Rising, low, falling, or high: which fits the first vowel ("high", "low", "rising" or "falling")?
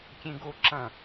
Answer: high